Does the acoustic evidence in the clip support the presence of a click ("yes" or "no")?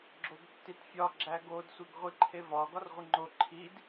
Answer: yes